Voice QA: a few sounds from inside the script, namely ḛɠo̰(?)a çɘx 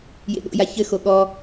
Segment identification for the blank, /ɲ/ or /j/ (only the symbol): j